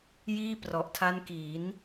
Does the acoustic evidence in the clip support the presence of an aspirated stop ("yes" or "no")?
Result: yes